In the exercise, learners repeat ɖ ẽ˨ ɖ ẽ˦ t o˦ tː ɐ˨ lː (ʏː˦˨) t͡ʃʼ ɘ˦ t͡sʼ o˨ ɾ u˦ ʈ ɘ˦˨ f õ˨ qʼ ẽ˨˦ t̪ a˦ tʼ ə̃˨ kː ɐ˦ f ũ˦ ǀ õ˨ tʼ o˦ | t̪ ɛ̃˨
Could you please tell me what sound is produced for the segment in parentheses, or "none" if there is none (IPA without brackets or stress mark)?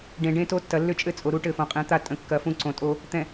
ʏ˦˨